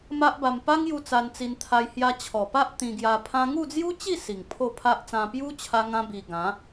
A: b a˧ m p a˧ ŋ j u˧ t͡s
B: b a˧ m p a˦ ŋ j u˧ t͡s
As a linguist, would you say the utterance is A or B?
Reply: B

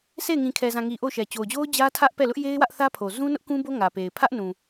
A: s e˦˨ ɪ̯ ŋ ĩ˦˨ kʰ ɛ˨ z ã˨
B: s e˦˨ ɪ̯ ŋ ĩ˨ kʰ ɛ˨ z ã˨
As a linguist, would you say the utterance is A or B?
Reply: B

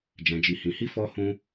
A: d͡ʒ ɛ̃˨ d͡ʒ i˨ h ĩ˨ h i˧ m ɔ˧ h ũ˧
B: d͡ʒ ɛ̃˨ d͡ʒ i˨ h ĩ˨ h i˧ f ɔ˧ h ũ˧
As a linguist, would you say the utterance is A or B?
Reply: B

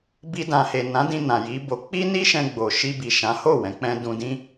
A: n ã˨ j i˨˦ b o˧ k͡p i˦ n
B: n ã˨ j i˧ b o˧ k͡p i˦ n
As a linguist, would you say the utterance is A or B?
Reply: A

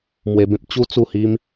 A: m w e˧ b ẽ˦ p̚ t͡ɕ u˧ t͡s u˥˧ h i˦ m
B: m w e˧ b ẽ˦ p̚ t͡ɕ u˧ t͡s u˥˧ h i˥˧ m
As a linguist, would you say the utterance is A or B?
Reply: A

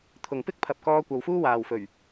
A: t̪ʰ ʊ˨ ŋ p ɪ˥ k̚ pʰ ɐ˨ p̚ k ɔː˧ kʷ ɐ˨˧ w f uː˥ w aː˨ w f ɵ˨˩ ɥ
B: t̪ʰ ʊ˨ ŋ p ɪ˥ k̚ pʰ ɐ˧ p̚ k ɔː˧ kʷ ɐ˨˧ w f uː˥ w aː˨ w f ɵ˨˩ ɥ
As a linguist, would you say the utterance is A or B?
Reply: A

